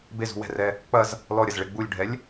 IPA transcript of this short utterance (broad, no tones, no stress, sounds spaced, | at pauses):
b e z ṳ w ɛ̤ r ɛ | k͡p ɐ z | l ɔ ɾʲ ɐ z ɭ e ɡ͡b u lʲ ɖʱ ɛ lʲ